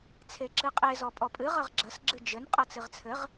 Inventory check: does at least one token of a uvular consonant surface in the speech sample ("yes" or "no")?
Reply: yes